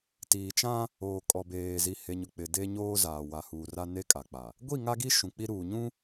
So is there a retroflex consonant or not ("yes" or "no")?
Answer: no